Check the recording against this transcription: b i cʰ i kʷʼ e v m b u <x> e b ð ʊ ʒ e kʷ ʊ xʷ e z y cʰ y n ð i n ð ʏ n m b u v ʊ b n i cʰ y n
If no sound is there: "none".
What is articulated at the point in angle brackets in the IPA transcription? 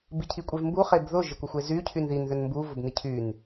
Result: χ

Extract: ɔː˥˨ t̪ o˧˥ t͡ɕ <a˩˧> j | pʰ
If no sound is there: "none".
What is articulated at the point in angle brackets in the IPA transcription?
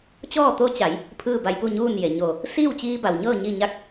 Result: a˩˧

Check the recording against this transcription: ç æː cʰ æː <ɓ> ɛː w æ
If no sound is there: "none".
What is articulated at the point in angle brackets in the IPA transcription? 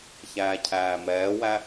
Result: m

